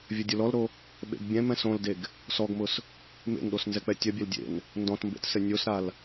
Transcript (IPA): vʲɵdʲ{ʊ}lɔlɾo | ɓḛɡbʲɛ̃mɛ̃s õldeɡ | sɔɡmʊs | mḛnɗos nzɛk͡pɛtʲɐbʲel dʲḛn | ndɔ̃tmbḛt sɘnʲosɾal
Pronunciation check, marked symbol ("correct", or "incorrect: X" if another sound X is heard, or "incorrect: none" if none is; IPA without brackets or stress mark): correct